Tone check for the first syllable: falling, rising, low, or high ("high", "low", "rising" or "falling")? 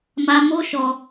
high